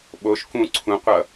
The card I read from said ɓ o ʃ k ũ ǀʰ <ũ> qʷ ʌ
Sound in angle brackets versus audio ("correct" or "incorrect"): correct